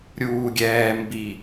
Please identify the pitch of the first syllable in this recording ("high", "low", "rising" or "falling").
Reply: low